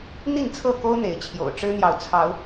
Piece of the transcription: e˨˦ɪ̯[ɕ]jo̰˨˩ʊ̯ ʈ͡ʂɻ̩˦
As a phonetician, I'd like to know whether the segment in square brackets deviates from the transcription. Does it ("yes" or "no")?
yes